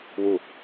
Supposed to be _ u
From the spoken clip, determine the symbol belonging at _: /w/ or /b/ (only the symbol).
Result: w